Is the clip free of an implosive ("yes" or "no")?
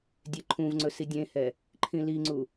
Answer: yes